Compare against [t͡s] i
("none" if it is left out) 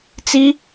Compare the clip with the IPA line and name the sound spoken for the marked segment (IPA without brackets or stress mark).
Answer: t͡s